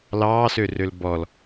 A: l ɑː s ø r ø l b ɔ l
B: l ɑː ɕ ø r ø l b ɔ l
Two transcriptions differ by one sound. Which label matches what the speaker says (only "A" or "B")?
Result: A